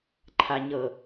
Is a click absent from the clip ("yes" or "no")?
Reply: no